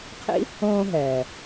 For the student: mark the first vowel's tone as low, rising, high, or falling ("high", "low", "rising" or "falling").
high